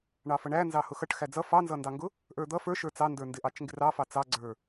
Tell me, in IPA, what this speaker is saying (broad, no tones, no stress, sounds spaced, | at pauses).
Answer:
ɳ ɑ f ʌ ɳ æ n z ɑ h ʊ x ʌ ʈ x æ d͡z ʌ f ɑ n z ʌ n d ɑ ŋ ɡ ʊ | ʔ ə˞ d̪ ʌ f ə˞ ʃ ə˞ t͡s ɑ n d ə˞ n d ɪ ʔ ɑ t͡ʃ ŋ ɡ ɪ r ɑ f ɑ t͡s ɑ ɡ͡ǀ ə˞